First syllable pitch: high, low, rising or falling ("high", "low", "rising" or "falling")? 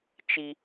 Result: high